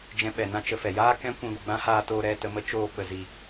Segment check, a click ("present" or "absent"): absent